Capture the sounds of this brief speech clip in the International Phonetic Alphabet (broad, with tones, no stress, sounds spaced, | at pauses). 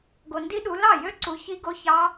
ɡ o˨ n d i˦˥ ɗ u˨˦ l ɑ˥˩ j ø˦˥ ǀ u˨˦ ç i˦˥ ɡ o˦˥ ç ɑ˦˥